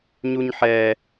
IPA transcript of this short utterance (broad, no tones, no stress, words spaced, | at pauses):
ɲuɲħɛ